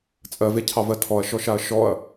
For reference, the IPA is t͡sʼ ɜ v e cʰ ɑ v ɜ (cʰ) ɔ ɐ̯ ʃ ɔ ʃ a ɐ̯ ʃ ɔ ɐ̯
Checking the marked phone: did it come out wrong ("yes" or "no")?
yes